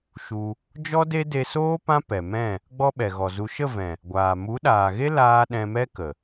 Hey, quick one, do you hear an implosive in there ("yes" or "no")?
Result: yes